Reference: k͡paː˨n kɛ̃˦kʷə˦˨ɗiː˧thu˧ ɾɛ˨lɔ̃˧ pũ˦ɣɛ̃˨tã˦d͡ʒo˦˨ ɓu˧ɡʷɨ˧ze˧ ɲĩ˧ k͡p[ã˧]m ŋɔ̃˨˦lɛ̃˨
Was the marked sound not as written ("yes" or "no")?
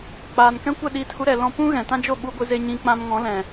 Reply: no